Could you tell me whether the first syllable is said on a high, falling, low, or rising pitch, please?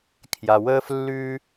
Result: low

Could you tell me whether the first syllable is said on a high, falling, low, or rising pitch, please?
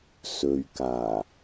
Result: low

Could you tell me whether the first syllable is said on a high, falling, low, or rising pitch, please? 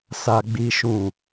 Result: high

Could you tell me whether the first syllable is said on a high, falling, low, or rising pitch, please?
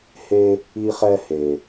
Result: high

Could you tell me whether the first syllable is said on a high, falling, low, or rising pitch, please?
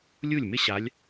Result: falling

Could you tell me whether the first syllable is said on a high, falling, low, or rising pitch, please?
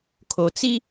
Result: low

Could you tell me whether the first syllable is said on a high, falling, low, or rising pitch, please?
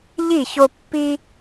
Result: falling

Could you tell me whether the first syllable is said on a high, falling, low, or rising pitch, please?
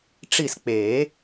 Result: falling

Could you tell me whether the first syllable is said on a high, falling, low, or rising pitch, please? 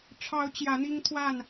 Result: rising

